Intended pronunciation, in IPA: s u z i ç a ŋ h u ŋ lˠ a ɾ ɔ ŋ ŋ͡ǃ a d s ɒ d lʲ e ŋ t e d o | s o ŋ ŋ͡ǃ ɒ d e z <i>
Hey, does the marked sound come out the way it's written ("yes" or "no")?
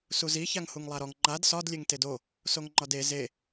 no